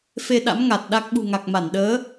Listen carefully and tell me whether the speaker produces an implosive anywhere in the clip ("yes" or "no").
yes